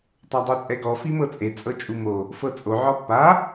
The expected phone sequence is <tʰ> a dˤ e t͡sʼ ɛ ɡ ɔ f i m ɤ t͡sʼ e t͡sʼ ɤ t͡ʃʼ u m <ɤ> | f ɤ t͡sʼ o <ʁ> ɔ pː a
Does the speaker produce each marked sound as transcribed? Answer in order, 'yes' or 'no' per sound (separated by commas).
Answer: no, no, no